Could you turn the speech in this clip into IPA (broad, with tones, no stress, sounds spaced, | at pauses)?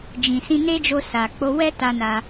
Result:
d͡ʒ ĩ˨ s ĩ˧ n e˦ d͡ʒ o˧ s a˨ k͡p o˧ w ɛ˦ t a˧ n a˧